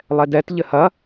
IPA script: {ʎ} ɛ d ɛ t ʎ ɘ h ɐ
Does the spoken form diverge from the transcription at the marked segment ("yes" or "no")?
yes